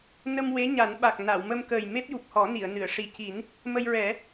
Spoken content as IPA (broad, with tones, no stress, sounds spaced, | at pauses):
n ə˧ m w e˧˥ ɲ a˨˩˦ n ɓ a˨˩ k̚ n a˨˩˨ w m ə˧ m k əː˨˩ j m e˦˥ p̚ j u˨˩ p̚ h ɔ˨˩˦ n i˨˩˨ ə̯ n ɨ˨˩˨ ə̯ ʂ i˨˩ c i˨˩˦ n | m ə˧ j ɹ ɛ˨˩˦